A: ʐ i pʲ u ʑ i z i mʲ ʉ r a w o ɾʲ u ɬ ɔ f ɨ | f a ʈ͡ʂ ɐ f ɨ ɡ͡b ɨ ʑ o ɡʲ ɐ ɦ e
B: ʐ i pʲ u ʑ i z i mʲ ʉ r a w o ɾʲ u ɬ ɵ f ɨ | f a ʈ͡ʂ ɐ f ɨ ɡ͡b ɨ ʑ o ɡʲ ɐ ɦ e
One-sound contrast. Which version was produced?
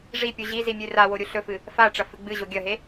B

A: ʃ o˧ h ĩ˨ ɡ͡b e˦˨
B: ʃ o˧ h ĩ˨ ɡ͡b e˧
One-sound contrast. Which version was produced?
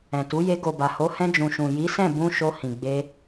B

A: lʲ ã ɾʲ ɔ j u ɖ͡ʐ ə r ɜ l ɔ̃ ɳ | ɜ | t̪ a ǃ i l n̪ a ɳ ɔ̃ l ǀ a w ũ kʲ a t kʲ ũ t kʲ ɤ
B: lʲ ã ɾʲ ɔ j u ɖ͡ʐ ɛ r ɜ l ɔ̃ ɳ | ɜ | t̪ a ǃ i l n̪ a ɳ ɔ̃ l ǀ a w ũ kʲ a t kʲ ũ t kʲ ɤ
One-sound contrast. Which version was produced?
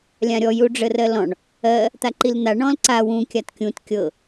A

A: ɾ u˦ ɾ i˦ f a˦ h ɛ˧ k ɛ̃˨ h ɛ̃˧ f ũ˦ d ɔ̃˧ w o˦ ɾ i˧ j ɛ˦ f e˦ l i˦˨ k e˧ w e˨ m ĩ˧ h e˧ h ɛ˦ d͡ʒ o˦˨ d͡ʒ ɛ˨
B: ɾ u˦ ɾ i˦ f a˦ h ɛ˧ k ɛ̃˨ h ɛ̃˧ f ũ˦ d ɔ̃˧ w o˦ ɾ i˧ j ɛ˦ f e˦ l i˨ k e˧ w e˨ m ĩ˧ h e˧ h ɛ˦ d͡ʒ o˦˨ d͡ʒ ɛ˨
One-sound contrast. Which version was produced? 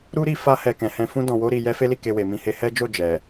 A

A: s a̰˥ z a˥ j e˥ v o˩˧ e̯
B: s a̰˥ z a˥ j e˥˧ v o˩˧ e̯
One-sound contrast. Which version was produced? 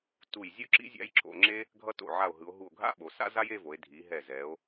B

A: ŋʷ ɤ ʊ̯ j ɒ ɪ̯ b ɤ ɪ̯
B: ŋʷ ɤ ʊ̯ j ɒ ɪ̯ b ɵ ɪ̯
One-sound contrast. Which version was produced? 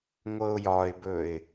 B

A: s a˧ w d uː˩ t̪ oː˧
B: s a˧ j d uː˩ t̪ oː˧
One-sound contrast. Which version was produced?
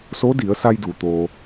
B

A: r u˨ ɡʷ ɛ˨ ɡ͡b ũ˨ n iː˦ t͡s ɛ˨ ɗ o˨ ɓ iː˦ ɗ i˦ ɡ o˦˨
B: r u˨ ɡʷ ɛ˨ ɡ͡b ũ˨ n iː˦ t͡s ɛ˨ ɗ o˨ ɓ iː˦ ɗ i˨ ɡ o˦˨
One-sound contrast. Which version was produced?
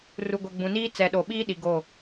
B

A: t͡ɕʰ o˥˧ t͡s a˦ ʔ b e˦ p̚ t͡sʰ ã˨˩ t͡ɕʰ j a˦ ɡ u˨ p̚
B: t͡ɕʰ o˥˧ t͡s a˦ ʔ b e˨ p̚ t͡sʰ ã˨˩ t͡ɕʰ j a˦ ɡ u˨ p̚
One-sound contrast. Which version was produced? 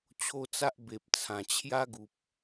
B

